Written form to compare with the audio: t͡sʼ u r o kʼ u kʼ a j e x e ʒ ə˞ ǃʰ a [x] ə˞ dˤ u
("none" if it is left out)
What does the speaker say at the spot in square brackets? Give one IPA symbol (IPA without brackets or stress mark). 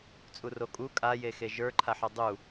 ħ